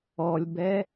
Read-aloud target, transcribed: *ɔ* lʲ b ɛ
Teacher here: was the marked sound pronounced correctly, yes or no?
yes